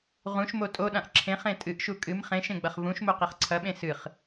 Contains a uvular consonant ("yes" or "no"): yes